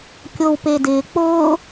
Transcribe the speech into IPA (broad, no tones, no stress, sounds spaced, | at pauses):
kʲ o w p e d ɪː k͡p ʊː